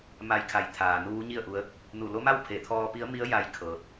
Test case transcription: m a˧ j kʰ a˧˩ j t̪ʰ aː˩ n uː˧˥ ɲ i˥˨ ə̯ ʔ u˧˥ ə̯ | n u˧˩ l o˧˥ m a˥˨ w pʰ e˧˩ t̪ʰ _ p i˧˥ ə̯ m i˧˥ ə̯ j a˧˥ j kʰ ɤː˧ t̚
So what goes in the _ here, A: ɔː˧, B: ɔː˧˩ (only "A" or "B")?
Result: A